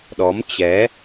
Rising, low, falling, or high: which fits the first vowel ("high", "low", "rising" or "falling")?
rising